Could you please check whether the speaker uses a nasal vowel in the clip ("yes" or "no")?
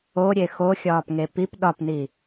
no